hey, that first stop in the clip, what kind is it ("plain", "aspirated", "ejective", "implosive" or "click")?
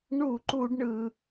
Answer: click